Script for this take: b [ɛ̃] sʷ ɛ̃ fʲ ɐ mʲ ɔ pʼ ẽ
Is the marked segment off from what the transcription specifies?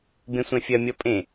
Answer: yes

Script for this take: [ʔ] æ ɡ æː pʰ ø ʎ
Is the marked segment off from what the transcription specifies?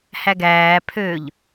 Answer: yes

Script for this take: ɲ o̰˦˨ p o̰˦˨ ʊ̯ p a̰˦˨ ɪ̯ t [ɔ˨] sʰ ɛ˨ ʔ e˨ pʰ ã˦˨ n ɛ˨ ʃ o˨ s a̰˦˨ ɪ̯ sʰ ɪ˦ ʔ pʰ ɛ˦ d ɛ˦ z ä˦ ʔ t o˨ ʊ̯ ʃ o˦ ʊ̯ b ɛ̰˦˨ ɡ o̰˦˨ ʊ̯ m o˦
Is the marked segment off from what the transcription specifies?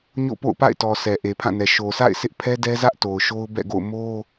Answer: no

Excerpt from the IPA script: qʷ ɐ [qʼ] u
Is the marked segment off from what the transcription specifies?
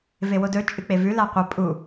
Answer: yes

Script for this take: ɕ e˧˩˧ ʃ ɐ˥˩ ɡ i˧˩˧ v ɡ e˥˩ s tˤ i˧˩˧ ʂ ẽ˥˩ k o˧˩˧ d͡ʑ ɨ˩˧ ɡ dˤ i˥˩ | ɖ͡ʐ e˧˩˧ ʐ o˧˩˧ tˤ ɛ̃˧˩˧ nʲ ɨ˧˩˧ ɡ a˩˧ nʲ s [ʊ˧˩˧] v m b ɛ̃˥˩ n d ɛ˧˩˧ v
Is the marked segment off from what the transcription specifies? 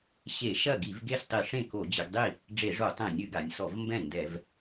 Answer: yes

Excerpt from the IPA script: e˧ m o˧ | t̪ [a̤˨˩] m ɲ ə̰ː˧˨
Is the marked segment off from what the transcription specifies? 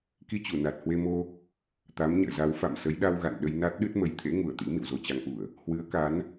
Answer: yes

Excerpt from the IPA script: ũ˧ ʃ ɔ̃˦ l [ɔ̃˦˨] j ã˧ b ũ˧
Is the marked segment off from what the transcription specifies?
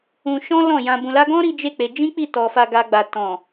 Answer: no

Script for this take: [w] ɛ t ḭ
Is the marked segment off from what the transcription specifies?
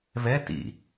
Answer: yes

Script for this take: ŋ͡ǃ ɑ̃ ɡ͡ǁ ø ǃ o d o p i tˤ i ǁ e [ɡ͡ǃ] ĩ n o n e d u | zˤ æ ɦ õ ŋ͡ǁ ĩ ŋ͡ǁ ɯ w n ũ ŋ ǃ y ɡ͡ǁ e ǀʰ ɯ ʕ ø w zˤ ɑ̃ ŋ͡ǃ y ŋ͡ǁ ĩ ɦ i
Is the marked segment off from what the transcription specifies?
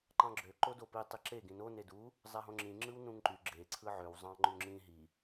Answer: yes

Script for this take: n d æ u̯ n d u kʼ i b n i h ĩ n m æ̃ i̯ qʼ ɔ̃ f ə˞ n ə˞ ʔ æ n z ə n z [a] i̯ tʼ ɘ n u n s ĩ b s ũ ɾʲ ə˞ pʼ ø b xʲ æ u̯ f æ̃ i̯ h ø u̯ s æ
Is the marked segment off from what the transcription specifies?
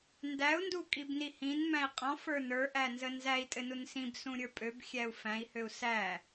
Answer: yes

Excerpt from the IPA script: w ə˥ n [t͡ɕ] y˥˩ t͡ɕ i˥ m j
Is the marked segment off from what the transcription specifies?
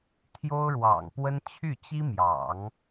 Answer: yes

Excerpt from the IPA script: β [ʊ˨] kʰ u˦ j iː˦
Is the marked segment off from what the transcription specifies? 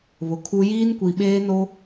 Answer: no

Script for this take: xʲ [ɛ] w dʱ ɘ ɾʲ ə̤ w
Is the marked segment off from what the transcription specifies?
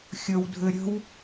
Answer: yes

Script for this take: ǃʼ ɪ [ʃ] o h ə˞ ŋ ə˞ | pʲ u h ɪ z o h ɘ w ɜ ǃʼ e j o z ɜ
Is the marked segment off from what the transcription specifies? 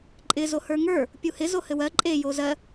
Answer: yes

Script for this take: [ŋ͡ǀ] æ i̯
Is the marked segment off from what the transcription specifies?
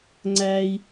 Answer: no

